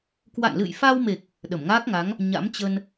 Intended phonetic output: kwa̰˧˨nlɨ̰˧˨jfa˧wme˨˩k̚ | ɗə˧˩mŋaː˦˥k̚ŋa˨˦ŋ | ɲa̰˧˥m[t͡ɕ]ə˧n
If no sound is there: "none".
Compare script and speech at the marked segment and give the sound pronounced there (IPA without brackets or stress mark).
t͡ɕ